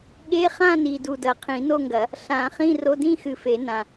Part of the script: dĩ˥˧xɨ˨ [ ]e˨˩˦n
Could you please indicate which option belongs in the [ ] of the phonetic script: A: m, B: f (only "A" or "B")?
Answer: B